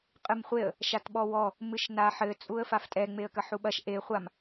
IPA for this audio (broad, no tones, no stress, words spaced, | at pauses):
qʼɨmχʷeə̯ | ʃatɓɔwɔ | mɨʃnaħɘ t͡sʼuə̯faftʼɛ ŋ͡meə̯kɐħuɓɐʃ ʔe χʷam